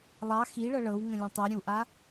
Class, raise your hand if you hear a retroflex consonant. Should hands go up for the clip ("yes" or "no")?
yes